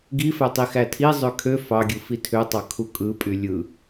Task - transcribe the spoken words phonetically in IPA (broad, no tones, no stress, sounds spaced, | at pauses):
ɡ i f æ tˤ i x æ tʰ i zˤ ø kʰ ø f ɑ ɡʲ ɯ f i tʰ ø tˤ ɑ kʰ u kʼ ɯ pʼ y lʲ ɯ